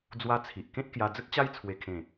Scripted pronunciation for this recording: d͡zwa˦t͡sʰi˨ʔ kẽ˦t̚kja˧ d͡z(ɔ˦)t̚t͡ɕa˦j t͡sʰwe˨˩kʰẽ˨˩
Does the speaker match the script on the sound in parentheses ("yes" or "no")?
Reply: no